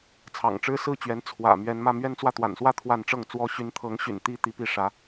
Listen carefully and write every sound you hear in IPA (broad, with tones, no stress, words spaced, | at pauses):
t͡sʰɑ̰˨˩ŋʈ͡ʂɻ̩˥ sɹ̩˥˩t͡ɕɥɛ˧˥n t͡sʰwä̰˨˩ mɥɛ˧˥nmä˥˧ mɥɛ˥˧nt͡swä˥˩t̪wa̰˨˩nswä˥˧ t̪ʰwa˥˧nʈ͡ʂɤ˥˩ŋt͡swɔ˥ ɕy˧˥nt̪ʰɤ˧˥ŋɕy̰˨˩nt̪i˧˥ t̪i˧˥pi˥˩ʂä˧˥